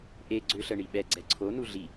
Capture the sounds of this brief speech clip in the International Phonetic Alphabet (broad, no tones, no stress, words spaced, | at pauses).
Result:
ʔeɡ͡ǀø ɬəɳiɓɛɡ͡ǀɛ ǀʰonu ɮi